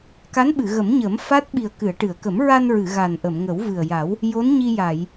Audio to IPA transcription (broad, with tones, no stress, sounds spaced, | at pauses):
k a˧˥ n ɓ ɨ˨˩˨ ɣ ə˨˩˦ m ɲ ə˨˩˦ m f a˦˥ t̚ ɓ i˨˩ ə̯ k ɨ˨˩˨ ə̯ ʈ ɨ˨˩˨ ə̯ k ə˨˩˦ m ɹ a˧ n ɹ ɨ˨˩˨ ɣ a˨˩ n ʔ ə˨˩˨ m ŋ ə˨˩˦ w v ɨ˨˩ ə̯ j a˨˩˦ w | j o˧˥ n ɲ i˧ j a˨˩˨ j